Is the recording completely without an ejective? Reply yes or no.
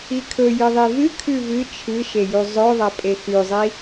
no